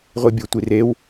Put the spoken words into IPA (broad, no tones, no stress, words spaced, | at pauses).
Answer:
ʁʷibʲotʷirew